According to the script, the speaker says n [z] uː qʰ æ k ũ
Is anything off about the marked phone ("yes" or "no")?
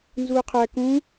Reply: no